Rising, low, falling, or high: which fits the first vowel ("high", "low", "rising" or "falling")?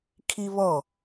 high